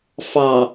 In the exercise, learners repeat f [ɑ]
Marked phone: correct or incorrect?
correct